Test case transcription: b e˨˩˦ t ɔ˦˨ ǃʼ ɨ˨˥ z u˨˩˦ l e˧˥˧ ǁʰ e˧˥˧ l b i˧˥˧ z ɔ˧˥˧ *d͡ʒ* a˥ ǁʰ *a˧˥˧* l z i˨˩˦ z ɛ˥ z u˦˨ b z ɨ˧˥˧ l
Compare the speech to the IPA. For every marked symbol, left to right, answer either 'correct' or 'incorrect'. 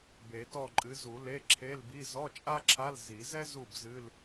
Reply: incorrect, correct

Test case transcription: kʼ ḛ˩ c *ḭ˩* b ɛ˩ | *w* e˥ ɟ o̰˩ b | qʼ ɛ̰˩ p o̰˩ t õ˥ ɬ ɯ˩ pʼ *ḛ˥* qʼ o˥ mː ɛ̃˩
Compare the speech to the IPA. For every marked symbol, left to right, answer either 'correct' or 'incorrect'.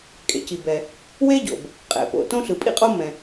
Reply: incorrect, correct, incorrect

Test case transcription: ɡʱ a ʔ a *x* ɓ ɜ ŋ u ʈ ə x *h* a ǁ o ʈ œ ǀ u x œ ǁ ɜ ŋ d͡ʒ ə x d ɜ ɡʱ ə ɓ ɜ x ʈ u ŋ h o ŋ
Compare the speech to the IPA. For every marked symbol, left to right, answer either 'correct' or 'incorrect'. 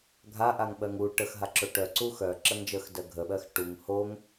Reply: incorrect, incorrect

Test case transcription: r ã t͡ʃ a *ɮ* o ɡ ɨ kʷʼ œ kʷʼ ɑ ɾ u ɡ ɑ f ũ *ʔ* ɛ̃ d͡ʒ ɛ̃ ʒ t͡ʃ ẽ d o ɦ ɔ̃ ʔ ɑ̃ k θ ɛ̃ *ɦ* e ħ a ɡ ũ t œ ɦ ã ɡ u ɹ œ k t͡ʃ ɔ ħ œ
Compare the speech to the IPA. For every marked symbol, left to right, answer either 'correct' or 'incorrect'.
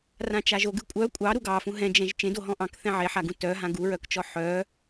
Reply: incorrect, incorrect, incorrect

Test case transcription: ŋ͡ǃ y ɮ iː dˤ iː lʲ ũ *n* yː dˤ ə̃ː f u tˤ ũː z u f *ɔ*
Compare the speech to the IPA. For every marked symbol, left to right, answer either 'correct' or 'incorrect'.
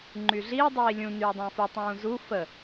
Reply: correct, incorrect

